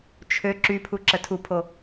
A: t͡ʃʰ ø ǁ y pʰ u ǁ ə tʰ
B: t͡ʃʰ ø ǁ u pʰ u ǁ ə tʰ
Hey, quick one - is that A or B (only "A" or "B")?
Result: A